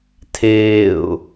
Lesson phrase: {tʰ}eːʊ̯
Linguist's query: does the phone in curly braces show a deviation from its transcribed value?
no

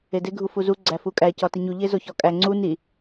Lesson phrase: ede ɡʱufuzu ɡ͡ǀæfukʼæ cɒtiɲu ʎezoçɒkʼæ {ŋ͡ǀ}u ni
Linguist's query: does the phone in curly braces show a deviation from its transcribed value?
no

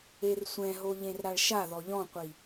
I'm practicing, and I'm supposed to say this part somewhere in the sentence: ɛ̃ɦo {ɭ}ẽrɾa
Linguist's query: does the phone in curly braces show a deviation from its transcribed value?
yes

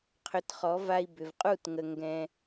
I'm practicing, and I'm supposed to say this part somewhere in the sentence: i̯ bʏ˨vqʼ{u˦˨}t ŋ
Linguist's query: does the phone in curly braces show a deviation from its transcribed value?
no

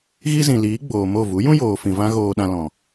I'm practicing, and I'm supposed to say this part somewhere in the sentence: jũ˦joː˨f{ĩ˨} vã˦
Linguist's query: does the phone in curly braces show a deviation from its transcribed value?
no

